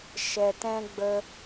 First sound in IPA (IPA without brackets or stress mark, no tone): ʃ